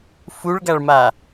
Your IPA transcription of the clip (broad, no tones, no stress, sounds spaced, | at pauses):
f u ɭ ɡ a ɭ m a